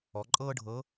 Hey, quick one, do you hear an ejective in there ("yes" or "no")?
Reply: yes